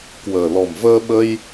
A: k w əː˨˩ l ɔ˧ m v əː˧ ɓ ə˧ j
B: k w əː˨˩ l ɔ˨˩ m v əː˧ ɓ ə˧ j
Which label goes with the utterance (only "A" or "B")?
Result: B